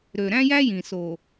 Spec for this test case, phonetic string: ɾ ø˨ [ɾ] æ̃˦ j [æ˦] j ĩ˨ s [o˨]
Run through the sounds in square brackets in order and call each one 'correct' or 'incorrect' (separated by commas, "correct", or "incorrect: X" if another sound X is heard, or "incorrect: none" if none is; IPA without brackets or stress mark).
correct, correct, correct